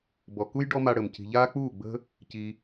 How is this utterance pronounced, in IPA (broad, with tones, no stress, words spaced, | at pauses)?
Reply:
bɔ˨ku˦j ɖɔ˦ma˧ ɽə˨m ci̤˨ʎaː˦k͡puː˦˨ɡ͡bə̤˦ | ci˧